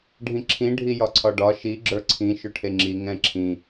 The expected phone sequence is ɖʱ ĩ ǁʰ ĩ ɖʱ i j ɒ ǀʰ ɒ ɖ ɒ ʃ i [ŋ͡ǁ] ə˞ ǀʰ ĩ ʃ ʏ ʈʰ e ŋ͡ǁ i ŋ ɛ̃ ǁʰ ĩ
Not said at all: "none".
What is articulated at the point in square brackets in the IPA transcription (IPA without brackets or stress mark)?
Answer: ɡ͡ǁ